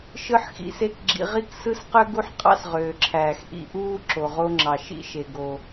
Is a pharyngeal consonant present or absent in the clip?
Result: present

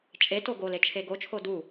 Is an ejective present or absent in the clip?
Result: present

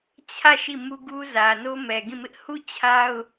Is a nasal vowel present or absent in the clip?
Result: present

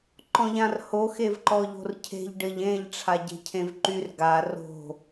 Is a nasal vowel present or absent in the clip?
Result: present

